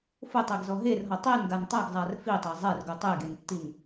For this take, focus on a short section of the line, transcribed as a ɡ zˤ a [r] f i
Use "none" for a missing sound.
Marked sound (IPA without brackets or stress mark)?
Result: r